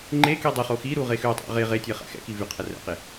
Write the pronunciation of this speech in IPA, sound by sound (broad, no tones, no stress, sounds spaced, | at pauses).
ŋ͡ǃ e k i dˤ i χ o x i ɾ u ʁ e x ø tˤ æ̰ ʁ e ʁ e tʲ ɛ χ æ̰ x ɛ̰ k i v y qʰ ɛ r ɛ̰ q e